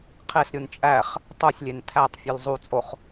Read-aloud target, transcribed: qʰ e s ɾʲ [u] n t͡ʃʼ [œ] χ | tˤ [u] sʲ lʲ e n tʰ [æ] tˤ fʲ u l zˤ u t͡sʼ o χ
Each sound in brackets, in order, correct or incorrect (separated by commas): correct, incorrect, correct, correct